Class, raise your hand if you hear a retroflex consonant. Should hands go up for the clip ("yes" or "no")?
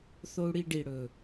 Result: yes